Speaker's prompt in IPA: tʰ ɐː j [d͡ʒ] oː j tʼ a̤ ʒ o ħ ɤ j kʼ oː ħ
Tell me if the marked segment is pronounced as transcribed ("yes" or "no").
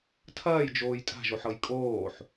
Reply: yes